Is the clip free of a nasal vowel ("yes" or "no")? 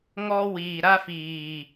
yes